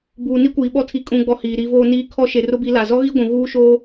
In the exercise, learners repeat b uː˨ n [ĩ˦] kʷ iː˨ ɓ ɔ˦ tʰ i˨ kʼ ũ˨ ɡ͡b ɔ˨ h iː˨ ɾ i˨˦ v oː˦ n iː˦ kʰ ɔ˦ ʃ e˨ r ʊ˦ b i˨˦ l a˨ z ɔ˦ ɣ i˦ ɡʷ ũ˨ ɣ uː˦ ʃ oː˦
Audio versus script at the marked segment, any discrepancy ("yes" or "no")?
yes